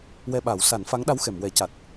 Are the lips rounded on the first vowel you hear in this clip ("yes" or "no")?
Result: no